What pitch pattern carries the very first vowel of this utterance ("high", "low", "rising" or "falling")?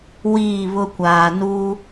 falling